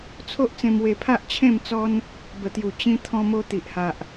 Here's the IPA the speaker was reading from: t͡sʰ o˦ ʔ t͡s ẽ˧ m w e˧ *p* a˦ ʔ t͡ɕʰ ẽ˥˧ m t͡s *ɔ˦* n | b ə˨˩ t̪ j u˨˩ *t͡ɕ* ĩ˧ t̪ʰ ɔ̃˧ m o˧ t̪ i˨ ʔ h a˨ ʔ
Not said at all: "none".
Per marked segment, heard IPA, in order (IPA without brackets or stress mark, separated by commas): pʰ, ɔ˦, t͡ɕ